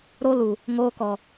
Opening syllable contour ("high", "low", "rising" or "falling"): high